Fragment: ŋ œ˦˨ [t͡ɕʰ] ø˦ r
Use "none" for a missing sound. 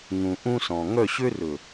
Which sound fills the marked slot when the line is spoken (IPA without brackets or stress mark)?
ɕ